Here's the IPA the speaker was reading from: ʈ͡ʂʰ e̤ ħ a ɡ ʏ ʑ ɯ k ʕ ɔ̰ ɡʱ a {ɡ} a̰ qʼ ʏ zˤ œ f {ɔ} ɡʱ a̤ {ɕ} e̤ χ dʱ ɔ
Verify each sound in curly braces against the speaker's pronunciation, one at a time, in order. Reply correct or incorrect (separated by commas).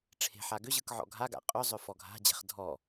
correct, correct, incorrect